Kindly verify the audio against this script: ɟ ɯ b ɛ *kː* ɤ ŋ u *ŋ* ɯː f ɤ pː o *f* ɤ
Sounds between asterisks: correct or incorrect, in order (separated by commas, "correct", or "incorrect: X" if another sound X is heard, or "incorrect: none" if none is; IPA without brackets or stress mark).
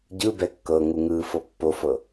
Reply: correct, correct, correct